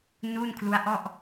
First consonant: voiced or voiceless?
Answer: voiced